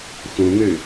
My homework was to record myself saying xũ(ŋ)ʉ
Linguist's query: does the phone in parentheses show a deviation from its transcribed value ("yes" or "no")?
no